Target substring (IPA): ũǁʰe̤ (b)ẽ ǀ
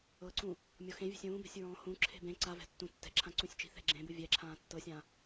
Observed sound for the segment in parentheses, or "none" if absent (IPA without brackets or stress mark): b